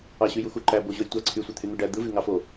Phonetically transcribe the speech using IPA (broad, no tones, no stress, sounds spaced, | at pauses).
ɑ ɕ y j u x u ǃ æ b o ʑ o j tʷ ɑ ǀʰ y sʷ æ t̪ʰ y n̪ u ɖ æ d̪ ɯ v y ŋ ɑ f o